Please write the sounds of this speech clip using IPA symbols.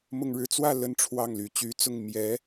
mʊ˥˧ŋɻɻ̩˥˧ t͡swä˥˧ lə˥˧nʈ͡ʂʰwɑ˥˩ŋly˧˥ t͡ɕy˧˥t͡sʊ˥˩ŋ mjɛ˧˥

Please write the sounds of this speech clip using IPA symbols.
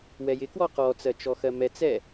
wɛjɪkwɔ qɔt͡sɜt͡ʃɔ xɜmɛt͡sɛ

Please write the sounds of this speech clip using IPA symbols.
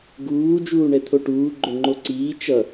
ɡuː d͡ʒuːɳɛt̪ʰoʈuː ɡ͡ǃoŋ͡ǃoǀiː t͡ʃʌ

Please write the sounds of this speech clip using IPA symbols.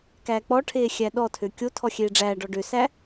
kæːk͡pɔʈʰeː xʲæɗɔtʰø kʲotʰɔ xʲeːɖ͡ʐæːɖɔ ɖøsæ

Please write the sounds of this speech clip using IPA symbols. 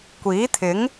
kʷiː˨˥t̪ʰɪ˨˥ŋ

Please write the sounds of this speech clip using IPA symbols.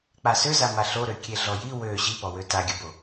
k͡pasøza maɬoɾø kʲeɮɔji wø ɕipɔwø taɡʲəbo

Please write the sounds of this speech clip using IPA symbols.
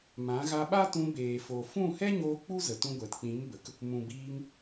mã˨˦ɣa˧ɓa˦tũ˧ beː˨fo˨ fũ˦˨hɛ˦ɲoː˧ k͡pu˦zə˨tũ˧ ɡʷɛ˨tk͡pĩ˨˦mbə˨k | mũ˨ biː˧ŋ

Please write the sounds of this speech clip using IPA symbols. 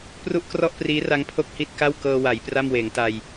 pru˥˩ʔkrɔ˥˩ʔpriː˦˥ra˦˥ŋ pʰo˥˩k̚hi˥˩t̚ka˥˩w kɤː˧wa˩˦j pra˥˩m weː˩˦ŋta˧j

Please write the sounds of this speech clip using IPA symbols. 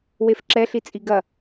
wefǁɛɬi t͡sʼiɡɐ

